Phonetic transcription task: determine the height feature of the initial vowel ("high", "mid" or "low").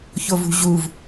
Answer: mid